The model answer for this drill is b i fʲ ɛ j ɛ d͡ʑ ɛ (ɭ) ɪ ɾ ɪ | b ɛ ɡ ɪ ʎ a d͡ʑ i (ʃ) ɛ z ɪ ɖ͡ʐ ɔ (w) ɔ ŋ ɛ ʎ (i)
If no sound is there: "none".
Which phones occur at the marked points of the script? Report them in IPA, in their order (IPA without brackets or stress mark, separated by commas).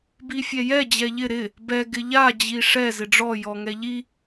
ʎ, ʂ, j, i